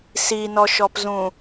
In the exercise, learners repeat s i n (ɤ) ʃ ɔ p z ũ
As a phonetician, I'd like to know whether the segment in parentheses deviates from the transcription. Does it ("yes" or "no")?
yes